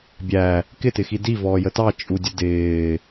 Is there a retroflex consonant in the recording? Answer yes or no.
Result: no